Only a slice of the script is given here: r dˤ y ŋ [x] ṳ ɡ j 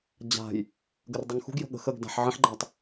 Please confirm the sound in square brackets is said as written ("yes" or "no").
yes